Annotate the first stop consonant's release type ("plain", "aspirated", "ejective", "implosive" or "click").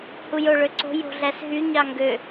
click